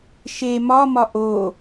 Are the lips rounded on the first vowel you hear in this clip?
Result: no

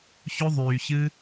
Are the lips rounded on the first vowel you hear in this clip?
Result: yes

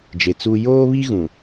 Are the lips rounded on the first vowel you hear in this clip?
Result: no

